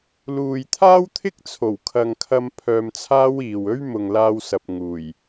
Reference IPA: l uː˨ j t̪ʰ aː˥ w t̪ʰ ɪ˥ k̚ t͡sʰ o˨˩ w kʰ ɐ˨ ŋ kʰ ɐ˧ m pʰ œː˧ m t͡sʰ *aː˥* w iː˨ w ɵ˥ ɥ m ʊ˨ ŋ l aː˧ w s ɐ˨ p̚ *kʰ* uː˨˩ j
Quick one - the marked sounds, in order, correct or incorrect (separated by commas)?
correct, incorrect